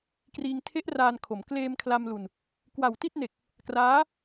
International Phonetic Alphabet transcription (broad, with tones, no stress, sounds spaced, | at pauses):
k r iː˧ ŋ tʰ e˦˥ ʔ r aː˧ n kʰ o˩˦ m k l eː˧ m kʰ l a˧ m l u˧ n | k w a˨˩ w t i˥˩ t̚ n e˨˩ k̚ | k r aː˦˥